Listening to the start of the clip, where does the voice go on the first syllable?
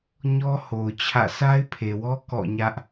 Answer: high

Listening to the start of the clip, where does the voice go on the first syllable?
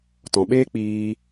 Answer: low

